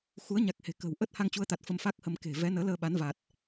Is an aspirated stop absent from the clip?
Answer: yes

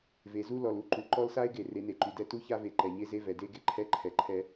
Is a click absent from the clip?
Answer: no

